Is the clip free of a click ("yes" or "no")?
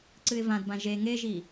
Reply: no